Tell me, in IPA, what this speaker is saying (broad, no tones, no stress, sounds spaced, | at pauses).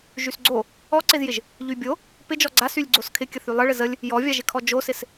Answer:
ʒ y s ɡ͡ǀ o | ɔ ǀ ɪ z j ɪ ʒ | ʎ y bʲ o | p ɪ d͡ʒ ɔ ɡ͡ǀ a s y lʲ ɡ͡ǀ o s kʰ ɪ kʲ ə θ y lˠ ə ɭ ɪ z ə lʲ | j ɔ vʲ a ʒ ɪ kʰ ɔ d͡ʒ o s ɪ s